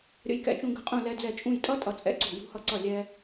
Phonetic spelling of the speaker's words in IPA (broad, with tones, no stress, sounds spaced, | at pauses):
ɾʲ ə̰˧ j k ɛ̰˧ t͡ʃ ũ˧ ɡ ə̤˧˩ qʼ ũ˧˩ l ɛ˧ d͡z ɛ˧˩ t͡ʃʼ ũ˧˩ j tʼ ʌ˦˥ tʼ ʌ˧ t͡sʼ ɛ̰˦˥ ǀ ṳ˧˩ j ṳ˧ h ʌ˧ ǀ ʌ˧˩ lʲ ɛ˧